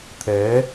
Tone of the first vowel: rising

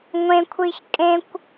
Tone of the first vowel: high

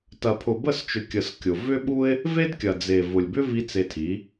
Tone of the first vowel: low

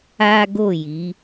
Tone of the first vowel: high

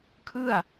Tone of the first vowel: falling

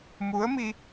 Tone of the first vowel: rising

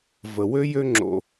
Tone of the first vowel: low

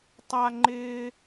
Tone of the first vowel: high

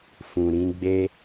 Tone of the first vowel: low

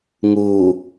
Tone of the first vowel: low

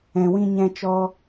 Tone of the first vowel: low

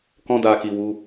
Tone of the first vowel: high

